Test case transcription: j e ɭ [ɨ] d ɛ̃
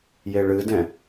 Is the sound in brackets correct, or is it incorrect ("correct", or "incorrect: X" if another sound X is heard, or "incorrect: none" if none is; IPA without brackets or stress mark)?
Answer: correct